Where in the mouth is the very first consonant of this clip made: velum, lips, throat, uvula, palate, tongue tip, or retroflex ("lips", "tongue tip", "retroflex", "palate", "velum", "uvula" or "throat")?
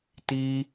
tongue tip